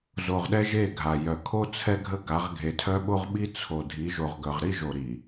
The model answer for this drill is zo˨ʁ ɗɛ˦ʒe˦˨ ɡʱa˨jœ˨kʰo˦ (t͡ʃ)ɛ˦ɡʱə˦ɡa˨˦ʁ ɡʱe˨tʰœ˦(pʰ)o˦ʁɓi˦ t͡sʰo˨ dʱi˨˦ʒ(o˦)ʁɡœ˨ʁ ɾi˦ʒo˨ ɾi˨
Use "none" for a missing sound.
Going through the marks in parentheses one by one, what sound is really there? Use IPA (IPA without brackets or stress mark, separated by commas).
t͡sʰ, ɓ, o˨